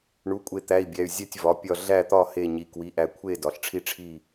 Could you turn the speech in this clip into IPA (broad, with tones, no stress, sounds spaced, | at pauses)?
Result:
ɳ u˩˧˩ kʷʼ e˧˩ t̪ æ˩˧˩ i̯ bʲ æ˩˧˩ y̯ zʲ æ˥˨ tʲ v ɒ˩˧˩ pʲ ɒ˥˨ ɮ æ˥˨ t̪ ɒ˥˨ h e˧˩ ɲ i˩˧˩ k w i˩˧˩ ʔ æ˧˩ kʷʰ e˥˨ d ɒ˩˧˩ ɬ ʈ͡ʂʰ i˥˨ ʈ͡ʂʰ i˥˨